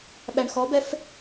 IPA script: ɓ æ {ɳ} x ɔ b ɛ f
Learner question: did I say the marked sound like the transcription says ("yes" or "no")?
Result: yes